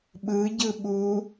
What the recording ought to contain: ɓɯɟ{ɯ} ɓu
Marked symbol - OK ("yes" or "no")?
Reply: yes